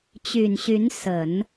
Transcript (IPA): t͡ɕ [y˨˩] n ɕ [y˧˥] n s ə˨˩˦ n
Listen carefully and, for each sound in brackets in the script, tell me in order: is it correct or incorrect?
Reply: correct, correct

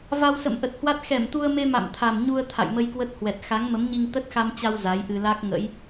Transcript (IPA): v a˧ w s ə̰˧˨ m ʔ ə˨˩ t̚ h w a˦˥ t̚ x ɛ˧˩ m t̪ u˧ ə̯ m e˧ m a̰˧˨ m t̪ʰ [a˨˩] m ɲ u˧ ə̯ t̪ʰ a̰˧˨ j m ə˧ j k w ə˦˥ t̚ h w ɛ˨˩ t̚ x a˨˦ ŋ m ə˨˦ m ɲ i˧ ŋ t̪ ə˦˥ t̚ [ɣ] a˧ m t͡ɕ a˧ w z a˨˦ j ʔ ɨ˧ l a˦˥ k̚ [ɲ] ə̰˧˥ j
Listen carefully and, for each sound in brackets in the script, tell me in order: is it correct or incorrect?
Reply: correct, incorrect, incorrect

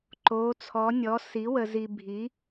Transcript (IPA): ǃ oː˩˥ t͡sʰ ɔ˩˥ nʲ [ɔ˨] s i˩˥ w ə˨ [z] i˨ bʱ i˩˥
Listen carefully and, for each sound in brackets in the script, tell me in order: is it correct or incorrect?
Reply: incorrect, correct

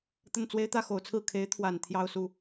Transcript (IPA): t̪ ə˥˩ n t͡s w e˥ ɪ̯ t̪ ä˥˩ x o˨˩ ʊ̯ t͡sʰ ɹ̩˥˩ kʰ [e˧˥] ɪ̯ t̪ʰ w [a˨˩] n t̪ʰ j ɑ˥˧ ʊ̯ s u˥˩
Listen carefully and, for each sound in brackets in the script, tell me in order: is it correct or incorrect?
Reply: correct, correct

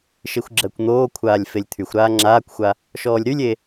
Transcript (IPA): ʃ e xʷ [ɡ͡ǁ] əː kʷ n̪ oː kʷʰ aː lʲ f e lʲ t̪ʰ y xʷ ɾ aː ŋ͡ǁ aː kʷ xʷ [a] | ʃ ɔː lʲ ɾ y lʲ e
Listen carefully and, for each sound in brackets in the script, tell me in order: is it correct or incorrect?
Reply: correct, correct

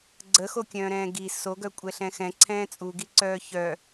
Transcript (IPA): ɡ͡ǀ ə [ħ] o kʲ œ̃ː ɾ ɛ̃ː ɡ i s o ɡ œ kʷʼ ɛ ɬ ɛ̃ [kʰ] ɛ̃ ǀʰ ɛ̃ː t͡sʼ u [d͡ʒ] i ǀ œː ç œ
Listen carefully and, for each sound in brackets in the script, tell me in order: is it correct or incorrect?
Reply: incorrect, incorrect, incorrect

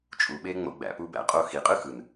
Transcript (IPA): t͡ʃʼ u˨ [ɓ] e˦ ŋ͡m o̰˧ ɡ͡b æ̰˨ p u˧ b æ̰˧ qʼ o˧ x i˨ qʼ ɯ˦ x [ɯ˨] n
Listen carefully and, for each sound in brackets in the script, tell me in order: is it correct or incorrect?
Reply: correct, correct

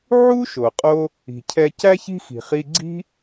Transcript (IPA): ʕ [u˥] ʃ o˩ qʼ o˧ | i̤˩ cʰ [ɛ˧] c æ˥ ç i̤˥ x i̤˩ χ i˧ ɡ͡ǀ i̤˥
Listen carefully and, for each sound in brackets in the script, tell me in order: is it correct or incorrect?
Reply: correct, correct

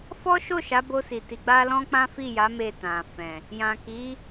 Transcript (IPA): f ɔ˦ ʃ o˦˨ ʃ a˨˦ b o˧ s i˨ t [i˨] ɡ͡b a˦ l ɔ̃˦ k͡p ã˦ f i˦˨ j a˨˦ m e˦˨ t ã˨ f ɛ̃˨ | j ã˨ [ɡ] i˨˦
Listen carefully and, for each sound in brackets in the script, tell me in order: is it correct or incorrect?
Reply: incorrect, incorrect

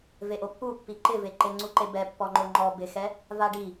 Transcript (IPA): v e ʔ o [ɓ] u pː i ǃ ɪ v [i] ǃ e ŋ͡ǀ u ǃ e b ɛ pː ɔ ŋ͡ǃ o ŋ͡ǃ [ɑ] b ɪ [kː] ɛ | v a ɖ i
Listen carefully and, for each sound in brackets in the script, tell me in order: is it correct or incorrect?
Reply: incorrect, incorrect, incorrect, incorrect

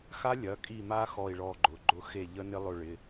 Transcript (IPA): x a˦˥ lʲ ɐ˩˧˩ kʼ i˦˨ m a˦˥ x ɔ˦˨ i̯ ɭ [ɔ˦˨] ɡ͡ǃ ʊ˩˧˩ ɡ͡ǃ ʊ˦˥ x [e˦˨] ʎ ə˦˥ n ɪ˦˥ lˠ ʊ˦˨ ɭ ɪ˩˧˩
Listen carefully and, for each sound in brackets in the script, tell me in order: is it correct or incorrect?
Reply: correct, correct

